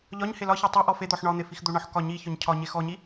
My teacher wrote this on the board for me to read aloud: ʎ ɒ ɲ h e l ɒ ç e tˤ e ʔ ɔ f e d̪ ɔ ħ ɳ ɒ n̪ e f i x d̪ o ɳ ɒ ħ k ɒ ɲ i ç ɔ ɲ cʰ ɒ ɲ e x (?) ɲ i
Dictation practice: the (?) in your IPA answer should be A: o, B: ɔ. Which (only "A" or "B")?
B